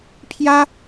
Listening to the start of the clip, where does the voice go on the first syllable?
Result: high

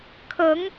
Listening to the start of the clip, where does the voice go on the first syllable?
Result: rising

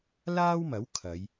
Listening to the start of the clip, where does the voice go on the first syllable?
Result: high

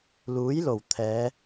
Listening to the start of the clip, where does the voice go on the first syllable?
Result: rising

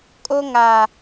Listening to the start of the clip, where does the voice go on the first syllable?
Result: high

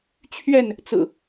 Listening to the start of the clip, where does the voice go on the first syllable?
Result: falling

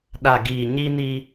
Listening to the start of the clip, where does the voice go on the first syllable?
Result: low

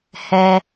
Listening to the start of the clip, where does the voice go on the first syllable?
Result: high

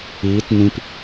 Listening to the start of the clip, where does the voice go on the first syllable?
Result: rising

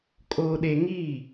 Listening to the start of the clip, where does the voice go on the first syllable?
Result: high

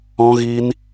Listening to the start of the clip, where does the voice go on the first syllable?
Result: high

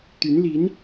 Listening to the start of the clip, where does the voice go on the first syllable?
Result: rising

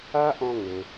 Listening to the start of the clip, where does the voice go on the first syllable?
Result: high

